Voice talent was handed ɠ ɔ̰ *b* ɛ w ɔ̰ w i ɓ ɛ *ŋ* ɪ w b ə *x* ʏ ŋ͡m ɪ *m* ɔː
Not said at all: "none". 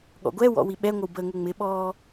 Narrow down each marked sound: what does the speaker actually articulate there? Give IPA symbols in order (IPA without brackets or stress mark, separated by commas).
ɡʷ, ŋʷ, ŋ, ɓ